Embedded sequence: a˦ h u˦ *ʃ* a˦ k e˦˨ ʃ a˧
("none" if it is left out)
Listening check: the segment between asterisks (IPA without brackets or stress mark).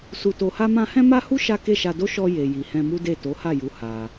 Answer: ʃ